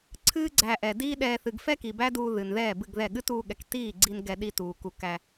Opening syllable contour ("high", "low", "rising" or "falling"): high